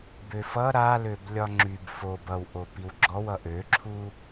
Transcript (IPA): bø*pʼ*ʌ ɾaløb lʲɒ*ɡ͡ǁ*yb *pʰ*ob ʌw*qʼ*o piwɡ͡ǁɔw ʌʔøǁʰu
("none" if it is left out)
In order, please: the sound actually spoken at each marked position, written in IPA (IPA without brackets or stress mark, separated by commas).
f, ŋ͡ǁ, f, ʔ